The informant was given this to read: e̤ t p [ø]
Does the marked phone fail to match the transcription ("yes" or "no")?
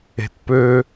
no